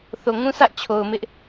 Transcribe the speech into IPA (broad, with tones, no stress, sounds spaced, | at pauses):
θ o˨ ŋ ũ˦ sʰ ä˦ ʔ t͡ɕʰ o˨ ʊ̯ m ɪ˦ ʔ